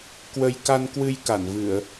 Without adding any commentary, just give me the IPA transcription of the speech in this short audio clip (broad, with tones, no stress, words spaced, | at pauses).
kwə˧j ka˧nkwɨ˧j ka˧˩nvɨ˧˩˨ə̯